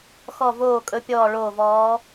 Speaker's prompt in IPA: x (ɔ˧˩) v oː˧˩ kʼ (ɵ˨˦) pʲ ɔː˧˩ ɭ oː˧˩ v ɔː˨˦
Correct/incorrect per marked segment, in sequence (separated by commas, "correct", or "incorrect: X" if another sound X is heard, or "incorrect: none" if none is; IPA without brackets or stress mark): correct, correct